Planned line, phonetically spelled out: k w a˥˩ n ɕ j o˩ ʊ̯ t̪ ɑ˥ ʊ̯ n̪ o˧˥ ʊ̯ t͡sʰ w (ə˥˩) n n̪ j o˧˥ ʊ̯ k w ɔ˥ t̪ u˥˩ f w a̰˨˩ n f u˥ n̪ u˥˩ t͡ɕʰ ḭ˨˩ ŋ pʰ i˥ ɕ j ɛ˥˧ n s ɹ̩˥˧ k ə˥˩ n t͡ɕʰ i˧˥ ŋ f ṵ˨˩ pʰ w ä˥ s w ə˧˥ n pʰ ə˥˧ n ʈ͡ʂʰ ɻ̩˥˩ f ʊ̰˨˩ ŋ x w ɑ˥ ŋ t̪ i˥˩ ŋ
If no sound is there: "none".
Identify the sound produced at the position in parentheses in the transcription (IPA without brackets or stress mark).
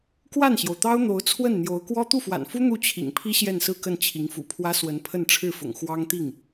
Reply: ə˥˩